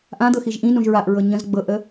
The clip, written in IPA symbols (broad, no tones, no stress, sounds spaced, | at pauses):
ʔ ã d̪ ɤ x i ʒ ʔ ĩ n ũ ʒ ɹ a ʔ ɹ ɤ ɲ ə̃ z ɡ͡b ɤ ʔ ə